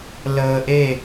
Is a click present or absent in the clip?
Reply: absent